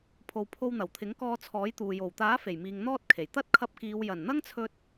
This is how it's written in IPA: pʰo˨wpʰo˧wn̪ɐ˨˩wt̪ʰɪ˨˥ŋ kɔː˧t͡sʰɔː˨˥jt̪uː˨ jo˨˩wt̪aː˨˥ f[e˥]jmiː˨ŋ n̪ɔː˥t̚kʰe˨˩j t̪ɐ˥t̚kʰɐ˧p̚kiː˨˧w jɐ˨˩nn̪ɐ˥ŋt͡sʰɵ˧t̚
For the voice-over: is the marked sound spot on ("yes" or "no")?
no